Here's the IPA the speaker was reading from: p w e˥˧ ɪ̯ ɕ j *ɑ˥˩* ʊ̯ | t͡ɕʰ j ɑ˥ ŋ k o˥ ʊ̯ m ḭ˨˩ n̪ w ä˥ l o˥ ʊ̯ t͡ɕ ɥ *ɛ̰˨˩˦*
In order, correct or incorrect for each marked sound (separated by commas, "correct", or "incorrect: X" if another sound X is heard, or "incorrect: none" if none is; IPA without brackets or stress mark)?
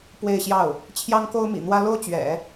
correct, correct